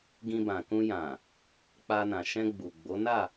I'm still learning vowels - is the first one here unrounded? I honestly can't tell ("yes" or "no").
yes